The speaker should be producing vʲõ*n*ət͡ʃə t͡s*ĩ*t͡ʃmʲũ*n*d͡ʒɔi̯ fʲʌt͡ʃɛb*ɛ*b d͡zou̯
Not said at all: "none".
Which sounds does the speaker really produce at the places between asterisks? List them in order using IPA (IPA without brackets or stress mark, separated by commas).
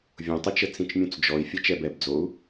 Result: tˤ, ĩ, t͡s, ɛ